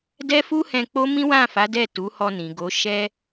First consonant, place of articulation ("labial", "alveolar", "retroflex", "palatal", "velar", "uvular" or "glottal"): alveolar